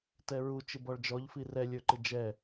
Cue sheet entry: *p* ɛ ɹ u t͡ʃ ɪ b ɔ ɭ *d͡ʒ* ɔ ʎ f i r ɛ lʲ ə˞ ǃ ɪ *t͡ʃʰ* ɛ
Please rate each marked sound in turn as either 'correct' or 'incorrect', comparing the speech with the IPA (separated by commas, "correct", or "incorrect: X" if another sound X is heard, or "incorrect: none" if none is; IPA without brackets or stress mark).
incorrect: t, correct, incorrect: d͡ʒ